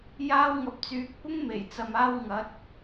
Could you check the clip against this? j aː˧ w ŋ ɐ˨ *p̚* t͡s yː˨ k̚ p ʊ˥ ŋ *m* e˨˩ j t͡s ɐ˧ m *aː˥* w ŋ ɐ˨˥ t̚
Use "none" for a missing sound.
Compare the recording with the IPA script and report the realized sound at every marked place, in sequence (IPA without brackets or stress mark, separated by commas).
p̚, m, aː˥